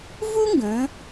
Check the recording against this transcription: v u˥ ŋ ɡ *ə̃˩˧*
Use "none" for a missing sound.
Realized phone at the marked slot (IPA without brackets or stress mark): ə̃˩˧